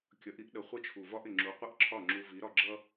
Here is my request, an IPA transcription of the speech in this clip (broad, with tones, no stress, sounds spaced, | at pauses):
kʲ ʌ˩˥ ʔ i˥ ʔ ɗ ə˩˥ χʷ ə˥˩ t͡ʃʰ u˩ v ɒ˥ ʔ ɪ˩ ŋ͡ǁ u˩˥ qʷ ə˥˩ ʔ ǁʰ ɒ˥˩ ŋ͡ǁ u˧ v i˩˥ ɾ ɒ˧ ɡ͡ǁ ʌ˥